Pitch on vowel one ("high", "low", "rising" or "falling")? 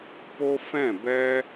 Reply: high